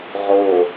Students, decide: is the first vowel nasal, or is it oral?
oral